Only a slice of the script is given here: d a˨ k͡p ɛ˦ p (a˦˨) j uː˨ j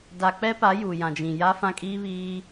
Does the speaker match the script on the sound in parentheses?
no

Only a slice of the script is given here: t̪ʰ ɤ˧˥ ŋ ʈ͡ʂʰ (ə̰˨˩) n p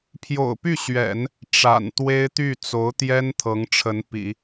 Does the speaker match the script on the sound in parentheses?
no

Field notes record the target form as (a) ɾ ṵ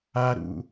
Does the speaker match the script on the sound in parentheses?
yes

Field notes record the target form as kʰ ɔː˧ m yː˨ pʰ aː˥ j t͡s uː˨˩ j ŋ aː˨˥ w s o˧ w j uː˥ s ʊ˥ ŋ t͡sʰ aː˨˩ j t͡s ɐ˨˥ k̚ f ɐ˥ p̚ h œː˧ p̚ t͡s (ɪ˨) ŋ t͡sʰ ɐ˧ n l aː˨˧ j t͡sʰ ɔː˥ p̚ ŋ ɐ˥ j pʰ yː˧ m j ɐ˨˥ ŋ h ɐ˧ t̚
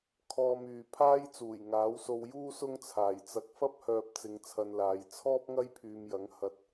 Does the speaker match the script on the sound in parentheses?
no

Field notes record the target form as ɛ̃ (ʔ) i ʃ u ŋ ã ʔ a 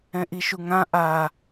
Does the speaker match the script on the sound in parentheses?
yes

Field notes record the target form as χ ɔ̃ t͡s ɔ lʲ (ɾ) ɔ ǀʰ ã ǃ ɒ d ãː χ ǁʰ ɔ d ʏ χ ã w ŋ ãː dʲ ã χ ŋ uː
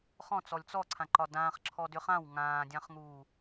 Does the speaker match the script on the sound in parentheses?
no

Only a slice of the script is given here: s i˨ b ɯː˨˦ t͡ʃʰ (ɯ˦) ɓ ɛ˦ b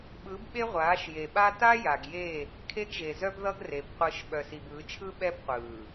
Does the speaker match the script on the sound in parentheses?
yes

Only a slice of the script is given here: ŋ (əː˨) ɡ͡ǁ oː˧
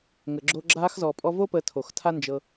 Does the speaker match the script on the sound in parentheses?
yes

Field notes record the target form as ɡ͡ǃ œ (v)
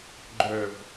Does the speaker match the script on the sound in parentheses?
yes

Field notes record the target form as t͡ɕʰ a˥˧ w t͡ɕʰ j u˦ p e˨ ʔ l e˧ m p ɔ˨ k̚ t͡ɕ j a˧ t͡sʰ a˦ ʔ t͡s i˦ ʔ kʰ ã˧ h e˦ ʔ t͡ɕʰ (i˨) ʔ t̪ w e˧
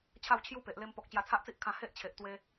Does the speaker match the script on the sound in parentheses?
no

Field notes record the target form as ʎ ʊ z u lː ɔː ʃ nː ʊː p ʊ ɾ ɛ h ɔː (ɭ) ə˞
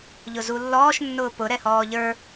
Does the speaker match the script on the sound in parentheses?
no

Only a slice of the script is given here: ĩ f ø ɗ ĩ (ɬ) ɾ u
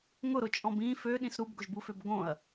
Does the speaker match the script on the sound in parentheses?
no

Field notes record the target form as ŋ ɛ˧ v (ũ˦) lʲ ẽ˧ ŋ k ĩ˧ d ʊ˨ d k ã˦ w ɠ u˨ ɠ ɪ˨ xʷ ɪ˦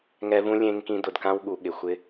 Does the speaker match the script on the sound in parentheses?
yes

